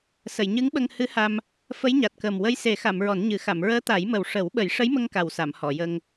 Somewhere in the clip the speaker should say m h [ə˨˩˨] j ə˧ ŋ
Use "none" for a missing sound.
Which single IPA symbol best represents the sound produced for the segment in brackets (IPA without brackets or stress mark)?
ɔ˨˩˨